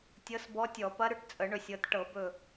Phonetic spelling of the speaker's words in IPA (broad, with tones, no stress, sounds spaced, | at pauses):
tʲ ɤ˧˥ s b ɔ˧˥ tʲ ɔ˧˩˧ p ɐ˧˥ ɾ ʏ˧˥ ʈ t͡sʼ ə˧˩˧ ɳ ɵ˧˩ sʲ ɤ˩˧ t ʈ ɤ˧˩˧ b ɵ˧˩